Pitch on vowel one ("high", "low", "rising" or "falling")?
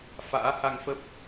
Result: rising